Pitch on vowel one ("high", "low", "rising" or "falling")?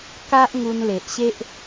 high